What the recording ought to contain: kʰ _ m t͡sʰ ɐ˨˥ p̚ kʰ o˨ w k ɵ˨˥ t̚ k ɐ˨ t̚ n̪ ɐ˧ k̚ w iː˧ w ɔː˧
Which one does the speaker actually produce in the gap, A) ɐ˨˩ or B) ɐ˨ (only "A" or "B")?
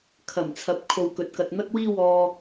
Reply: A